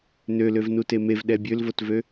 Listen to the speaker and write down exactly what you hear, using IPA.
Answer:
nøløv nutemev ɗɛbʲølvotvø

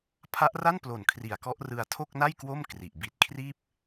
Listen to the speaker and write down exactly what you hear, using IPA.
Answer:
pʰa˦˥ʔra˥˩nplo˨˩n kʰri˨˩a̯kɔ˦˥ʔ rɯ˧a̯ tʰo˥˩k̚na˥˩j kwo˥˩m kri˨˩ʔ bi˨˩t̚kʰriː˥˩p̚

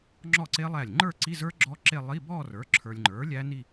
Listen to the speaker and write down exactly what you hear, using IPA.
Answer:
ŋ͡ǁɔ˥˩ǀe˦˥ lˠæ˥˩lʲ ŋ͡ǃə˞˥˧ǀi˧˥˧zə˞˦˥ ɡ͡ǁɔ˦˥ǁe˥˧ lˠi˧˥˧ bɔ˥˧rə˞˩˥ ǁʰə˞˨lʲŋ͡ǃə˞˩˥ lʲæ˦˥ni˥˧

